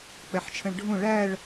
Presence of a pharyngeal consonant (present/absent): present